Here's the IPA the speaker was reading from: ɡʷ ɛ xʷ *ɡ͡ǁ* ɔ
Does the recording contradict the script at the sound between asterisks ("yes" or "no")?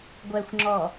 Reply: yes